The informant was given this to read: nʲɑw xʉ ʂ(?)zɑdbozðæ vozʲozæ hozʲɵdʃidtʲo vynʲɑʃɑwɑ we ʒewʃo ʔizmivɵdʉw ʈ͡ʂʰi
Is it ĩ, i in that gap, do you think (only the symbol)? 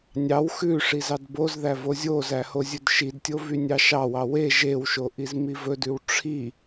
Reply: i